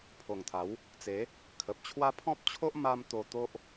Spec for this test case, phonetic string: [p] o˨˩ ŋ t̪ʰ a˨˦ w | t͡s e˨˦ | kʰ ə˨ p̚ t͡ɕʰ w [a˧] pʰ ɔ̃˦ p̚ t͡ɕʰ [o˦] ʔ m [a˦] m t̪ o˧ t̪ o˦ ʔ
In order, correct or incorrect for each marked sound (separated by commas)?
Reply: incorrect, incorrect, correct, correct